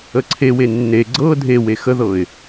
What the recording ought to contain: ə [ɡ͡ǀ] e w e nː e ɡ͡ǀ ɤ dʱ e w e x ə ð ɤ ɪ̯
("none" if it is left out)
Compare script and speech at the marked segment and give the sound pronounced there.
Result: ǀʰ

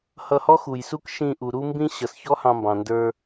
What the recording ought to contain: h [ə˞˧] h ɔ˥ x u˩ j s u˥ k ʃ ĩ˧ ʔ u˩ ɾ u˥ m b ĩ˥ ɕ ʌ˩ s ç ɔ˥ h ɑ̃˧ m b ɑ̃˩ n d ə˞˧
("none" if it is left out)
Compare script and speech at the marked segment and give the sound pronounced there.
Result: ʌ˧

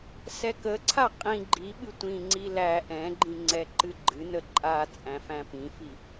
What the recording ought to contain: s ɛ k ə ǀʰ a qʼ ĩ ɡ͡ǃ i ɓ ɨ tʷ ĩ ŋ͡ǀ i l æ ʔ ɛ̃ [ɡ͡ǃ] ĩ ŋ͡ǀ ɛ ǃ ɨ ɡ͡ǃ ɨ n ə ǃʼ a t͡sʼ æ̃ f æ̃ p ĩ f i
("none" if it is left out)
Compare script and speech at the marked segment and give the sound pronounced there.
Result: ɡ͡ǃ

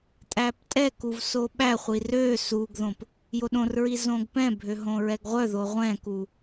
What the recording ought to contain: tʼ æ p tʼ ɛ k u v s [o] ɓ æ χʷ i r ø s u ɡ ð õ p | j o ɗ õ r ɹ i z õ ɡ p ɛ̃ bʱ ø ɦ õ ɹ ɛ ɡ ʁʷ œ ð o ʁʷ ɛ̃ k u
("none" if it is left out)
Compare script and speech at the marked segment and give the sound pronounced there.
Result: o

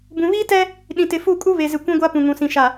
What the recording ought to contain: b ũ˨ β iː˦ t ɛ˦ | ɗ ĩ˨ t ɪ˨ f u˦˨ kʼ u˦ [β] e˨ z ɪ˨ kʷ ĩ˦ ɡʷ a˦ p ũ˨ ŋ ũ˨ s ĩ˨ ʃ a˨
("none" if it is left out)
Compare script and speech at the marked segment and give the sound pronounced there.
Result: β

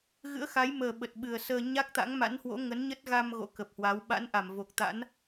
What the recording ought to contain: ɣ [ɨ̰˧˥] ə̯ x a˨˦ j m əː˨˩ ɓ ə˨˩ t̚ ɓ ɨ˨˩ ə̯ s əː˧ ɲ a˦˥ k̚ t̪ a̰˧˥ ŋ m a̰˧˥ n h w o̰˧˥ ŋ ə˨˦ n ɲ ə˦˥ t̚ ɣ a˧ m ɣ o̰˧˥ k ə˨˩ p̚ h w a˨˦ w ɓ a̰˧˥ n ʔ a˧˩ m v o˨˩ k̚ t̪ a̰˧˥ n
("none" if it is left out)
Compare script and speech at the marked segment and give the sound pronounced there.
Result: ɨ̰˧˥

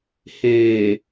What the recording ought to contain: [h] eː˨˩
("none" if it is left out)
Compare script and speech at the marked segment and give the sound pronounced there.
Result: h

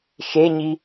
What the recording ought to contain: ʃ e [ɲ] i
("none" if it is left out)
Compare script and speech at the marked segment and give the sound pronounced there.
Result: ɲ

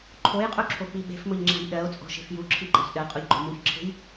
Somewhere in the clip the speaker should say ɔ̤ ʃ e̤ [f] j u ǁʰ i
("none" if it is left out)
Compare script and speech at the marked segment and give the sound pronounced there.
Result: f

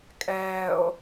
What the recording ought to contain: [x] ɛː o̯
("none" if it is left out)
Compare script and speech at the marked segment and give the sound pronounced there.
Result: kʼ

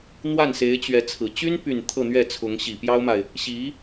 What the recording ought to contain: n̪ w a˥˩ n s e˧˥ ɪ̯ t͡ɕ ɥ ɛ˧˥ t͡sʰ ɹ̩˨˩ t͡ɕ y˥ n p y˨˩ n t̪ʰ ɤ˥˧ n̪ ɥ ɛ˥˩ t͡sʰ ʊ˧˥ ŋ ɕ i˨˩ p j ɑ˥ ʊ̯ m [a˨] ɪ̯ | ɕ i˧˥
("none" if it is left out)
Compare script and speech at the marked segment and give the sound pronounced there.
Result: a˨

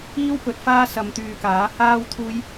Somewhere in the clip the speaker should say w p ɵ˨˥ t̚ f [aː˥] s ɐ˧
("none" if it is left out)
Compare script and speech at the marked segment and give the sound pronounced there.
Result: aː˥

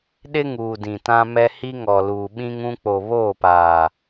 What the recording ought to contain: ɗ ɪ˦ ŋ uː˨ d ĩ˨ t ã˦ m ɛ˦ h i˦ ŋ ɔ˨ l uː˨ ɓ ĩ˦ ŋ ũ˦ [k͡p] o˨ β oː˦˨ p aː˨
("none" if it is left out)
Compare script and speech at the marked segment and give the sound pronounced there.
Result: k͡p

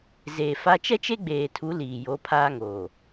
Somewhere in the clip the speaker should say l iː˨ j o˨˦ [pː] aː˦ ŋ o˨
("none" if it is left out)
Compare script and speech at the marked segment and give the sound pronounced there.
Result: pʰ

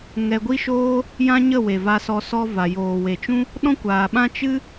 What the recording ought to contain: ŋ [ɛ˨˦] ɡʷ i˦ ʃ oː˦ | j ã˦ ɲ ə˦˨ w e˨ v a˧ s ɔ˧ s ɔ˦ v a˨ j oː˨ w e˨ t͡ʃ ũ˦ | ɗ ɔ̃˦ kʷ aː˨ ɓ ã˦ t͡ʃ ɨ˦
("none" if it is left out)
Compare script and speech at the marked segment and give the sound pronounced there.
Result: ɛ˧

